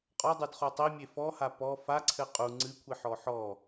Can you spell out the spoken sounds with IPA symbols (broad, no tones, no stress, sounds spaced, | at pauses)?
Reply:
qʼ ɔ dˤ ɨ d χ o tˤ i mʲ e f ɔ h a p ɔ f a ǀʰ ɘ qʼ u ŋ͡ǀ ɨ kʷʰ i ħ ɔ ħ ɔ